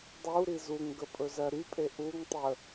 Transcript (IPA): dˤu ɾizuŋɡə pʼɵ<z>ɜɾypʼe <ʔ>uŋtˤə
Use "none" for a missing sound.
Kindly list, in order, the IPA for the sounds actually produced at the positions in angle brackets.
z, ʔ

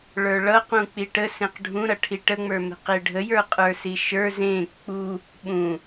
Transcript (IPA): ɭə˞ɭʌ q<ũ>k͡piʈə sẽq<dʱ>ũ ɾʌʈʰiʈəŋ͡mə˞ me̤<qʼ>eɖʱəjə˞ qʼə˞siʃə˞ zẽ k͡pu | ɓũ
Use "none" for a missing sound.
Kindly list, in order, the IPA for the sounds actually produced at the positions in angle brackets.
ũ, ɖʱ, q

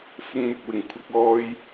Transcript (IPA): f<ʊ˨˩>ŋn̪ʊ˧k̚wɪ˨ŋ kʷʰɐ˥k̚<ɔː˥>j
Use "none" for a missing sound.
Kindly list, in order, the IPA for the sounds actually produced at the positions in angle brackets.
ʊ˥, ɔː˥

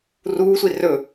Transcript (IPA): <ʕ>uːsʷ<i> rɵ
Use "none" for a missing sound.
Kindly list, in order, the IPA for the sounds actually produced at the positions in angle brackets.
r, i

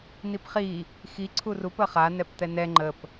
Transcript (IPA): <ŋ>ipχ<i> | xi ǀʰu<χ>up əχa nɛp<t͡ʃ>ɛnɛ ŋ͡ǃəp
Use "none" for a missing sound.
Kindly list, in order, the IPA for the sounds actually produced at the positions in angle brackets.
n, i, r, t̪

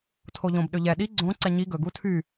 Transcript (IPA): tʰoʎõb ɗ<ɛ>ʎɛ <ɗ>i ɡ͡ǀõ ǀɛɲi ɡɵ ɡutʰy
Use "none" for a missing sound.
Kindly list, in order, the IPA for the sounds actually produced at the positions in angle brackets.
ø, ɗ

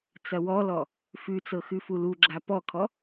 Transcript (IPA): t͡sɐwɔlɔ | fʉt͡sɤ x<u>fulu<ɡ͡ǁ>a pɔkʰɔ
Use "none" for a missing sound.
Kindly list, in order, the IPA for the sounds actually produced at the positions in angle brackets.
ʉ, ɡ͡ǁ

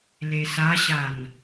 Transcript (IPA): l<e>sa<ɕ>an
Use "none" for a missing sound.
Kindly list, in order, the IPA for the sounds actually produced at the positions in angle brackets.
e, ɕ

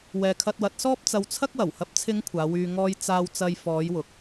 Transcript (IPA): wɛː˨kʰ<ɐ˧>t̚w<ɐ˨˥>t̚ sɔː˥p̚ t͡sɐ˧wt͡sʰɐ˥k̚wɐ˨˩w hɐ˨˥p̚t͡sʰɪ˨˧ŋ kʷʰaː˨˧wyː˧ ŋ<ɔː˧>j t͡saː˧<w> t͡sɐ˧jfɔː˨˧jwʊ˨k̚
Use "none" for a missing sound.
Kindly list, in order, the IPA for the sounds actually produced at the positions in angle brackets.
ɐ˧, ɐ˨˥, ɔː˧, w

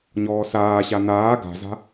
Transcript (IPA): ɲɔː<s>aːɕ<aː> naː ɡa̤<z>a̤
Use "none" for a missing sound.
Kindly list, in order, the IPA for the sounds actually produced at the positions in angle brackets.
s, a, z

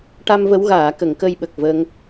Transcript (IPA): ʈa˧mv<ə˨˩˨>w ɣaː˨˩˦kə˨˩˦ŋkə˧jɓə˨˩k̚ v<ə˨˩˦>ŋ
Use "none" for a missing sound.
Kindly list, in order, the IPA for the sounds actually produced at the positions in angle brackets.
ə˧˥, ə˧

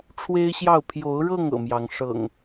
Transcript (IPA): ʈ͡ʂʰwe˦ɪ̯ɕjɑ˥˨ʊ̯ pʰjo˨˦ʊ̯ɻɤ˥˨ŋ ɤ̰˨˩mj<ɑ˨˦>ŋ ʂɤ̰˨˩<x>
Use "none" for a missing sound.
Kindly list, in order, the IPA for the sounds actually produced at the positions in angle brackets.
ɑ˨˦, ŋ

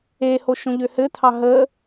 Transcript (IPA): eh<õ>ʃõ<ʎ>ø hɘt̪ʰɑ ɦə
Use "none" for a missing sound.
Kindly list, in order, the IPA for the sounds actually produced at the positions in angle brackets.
o, ʎ

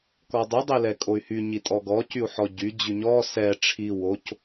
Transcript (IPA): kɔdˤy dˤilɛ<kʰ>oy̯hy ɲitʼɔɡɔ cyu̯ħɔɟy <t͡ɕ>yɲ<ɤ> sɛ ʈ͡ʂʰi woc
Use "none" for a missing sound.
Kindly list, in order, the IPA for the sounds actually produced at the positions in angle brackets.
kʼ, d͡ʑ, ɔ

